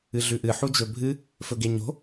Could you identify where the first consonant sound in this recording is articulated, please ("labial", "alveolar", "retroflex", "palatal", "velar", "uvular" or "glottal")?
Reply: alveolar